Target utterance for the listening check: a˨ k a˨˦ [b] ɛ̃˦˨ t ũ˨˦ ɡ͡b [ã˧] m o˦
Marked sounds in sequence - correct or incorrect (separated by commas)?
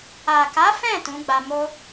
incorrect, incorrect